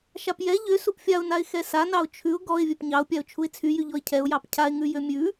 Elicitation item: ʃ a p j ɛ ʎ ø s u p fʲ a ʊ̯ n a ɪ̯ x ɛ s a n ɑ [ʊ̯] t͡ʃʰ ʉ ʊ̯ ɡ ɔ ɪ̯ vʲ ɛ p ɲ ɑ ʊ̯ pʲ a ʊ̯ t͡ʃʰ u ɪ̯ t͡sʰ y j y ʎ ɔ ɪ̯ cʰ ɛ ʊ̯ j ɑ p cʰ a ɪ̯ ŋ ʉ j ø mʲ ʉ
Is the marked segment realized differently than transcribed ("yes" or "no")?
no